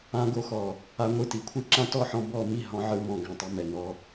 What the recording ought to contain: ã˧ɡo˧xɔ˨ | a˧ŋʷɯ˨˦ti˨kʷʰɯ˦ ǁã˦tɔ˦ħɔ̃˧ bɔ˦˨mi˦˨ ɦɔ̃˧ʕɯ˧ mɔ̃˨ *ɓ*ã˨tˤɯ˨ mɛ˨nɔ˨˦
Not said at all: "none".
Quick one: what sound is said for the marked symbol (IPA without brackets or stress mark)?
ɡ